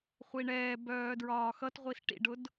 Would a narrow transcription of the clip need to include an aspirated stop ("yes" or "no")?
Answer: no